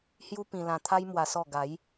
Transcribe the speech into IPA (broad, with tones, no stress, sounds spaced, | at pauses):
h j u˦ p ĩ˧ l ã˧ t̪ʰ a˦ j m w a˧ s ɔ˥˧ ɡ a˨˦ j